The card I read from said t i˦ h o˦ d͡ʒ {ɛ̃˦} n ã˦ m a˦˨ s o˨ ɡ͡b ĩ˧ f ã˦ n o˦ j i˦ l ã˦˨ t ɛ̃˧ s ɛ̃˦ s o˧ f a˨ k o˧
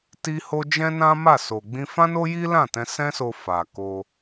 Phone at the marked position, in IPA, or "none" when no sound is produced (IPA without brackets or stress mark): ɛ̃˦